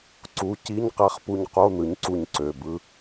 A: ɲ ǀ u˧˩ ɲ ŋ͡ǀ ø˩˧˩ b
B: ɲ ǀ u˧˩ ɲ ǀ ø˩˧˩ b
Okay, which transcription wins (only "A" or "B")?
B